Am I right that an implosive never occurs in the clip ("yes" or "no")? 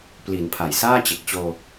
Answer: yes